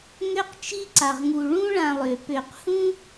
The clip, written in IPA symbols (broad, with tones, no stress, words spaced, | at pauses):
ŋø˦qt͡ʃi˦ ǀa˩ʁŋu˨ ɭũ˦ɭã˨lˠø˩ pø˨q hũ˥